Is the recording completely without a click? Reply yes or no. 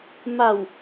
yes